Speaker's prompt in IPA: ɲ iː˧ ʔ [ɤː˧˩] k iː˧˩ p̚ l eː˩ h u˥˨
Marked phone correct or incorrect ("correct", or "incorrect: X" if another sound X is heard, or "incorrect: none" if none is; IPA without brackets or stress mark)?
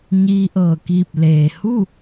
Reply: correct